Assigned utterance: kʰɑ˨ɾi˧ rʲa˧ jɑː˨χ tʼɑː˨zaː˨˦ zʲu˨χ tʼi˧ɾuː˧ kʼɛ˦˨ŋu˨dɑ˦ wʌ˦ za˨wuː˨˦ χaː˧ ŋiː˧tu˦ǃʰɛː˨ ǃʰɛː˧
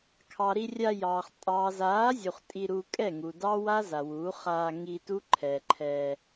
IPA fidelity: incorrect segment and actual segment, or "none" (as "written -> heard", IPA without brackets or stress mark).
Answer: ʌ˦ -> a˦